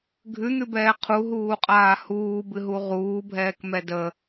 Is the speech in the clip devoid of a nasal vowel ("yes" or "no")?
yes